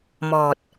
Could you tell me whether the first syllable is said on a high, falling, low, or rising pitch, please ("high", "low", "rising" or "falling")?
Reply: low